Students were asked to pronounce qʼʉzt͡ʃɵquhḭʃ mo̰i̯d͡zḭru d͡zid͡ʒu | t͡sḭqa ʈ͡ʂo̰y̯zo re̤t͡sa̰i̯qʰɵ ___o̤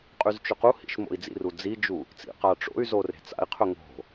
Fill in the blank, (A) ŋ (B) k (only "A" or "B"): A